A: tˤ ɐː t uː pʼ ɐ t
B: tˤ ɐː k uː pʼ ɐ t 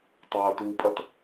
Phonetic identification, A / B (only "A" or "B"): A